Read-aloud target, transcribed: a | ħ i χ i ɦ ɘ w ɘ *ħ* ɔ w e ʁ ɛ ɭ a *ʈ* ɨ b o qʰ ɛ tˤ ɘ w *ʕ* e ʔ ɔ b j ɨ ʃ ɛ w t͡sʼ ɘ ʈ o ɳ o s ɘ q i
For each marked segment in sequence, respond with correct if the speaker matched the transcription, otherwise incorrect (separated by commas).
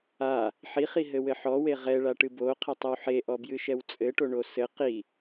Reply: correct, correct, incorrect